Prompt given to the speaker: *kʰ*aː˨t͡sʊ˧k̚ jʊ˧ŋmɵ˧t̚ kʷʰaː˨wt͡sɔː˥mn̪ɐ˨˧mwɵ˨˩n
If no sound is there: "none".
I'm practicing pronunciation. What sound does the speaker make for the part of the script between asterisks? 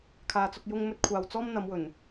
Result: kʰ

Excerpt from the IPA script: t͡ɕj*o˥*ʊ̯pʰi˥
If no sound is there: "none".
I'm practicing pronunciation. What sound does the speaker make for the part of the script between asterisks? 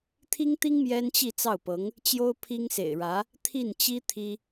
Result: o˥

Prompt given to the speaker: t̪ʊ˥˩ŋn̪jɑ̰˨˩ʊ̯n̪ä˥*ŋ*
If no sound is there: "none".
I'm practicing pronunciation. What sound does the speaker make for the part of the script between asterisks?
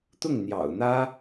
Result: none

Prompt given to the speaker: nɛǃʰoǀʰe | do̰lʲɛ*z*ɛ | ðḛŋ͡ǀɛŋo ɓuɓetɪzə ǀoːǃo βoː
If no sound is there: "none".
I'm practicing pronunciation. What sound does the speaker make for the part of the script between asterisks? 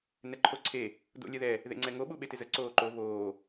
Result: ð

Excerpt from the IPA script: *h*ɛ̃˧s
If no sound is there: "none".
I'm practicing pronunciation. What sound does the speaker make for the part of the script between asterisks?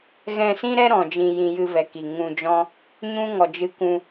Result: ɣ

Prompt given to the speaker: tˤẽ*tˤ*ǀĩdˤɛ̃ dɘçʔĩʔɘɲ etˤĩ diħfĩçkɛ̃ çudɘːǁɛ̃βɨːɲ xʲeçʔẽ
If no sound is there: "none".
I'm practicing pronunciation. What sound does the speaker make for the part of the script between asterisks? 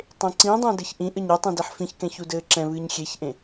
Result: none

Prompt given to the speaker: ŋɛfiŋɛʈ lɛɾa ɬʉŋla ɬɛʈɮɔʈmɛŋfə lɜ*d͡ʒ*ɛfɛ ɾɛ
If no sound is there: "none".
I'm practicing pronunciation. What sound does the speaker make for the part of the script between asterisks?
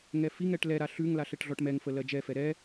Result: d͡ʒ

